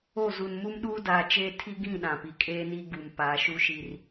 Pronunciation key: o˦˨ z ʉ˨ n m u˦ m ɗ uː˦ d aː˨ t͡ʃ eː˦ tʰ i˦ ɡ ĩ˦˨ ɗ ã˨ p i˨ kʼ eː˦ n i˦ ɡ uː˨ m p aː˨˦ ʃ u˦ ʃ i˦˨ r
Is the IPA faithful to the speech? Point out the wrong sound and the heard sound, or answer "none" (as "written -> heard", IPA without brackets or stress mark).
ʉ˨ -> u˨